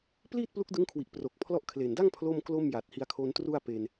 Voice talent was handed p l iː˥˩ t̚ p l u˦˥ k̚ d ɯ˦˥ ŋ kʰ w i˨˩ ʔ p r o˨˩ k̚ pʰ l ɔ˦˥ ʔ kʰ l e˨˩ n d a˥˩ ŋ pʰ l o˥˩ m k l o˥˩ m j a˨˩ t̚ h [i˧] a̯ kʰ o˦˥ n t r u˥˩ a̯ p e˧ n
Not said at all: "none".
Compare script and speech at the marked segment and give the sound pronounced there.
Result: i˧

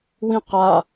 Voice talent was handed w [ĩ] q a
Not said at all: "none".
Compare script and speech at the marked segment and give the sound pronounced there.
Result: ĩ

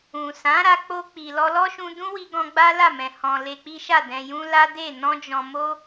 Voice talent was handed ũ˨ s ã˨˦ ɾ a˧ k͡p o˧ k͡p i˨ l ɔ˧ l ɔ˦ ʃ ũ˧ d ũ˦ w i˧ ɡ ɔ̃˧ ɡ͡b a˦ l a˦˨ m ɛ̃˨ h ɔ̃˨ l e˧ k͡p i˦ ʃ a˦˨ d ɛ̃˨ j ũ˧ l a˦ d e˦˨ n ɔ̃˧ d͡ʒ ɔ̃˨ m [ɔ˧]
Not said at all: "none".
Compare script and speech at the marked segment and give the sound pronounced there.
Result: o˧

